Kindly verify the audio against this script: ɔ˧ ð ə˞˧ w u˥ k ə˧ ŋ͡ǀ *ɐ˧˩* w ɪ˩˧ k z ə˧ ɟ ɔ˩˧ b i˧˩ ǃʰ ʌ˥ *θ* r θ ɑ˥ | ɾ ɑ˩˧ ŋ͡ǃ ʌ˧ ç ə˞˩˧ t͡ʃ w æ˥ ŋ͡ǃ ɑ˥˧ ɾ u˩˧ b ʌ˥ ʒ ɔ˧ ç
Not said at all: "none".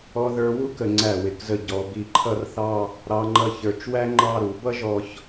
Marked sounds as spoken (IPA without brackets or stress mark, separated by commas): æ˧˩, none